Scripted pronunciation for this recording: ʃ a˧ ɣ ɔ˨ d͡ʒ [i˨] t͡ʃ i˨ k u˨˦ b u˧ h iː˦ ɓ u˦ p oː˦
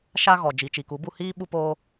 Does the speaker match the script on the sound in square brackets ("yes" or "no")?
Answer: yes